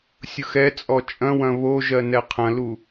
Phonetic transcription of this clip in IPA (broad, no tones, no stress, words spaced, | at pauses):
sʲʊxɛ t͡sʼɔt͡ʃʼɐ̃wɐ̃ βoʒɜ nɛqʰɐ̃lu